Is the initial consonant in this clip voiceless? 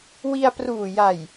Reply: no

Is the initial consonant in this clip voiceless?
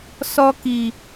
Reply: yes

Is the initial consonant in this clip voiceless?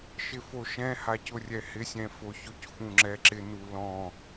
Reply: yes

